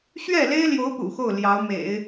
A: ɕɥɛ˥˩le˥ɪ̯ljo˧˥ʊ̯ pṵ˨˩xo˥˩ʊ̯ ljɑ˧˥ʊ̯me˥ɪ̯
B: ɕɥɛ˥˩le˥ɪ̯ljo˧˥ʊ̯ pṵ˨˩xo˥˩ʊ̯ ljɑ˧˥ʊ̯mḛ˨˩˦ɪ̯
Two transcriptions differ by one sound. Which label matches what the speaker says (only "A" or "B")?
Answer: B